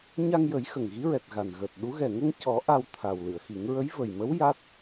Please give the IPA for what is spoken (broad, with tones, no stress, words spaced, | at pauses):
ɲa˧ŋjə˨˩˦j xə˨˩ŋɣi˧˥ɹɛ˨˩t̚ ɣa˨˩nɣəː˨˩t̚ɗu˧˥ ɣɛ˨˩ŋə˧ŋcɔ˨˩˦ ʔa˧w t̪ʰa˨˩wlɨ˨˩˨ə̯xi˨˩˦ŋ ɹə˧˥jvə˨˩jmə˧˥w ja˦˥t̚